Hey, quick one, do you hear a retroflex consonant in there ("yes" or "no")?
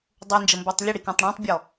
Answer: yes